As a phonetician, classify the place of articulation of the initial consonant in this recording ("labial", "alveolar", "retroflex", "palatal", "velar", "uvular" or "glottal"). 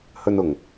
glottal